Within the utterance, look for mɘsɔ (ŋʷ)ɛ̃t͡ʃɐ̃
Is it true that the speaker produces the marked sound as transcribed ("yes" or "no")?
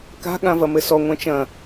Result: yes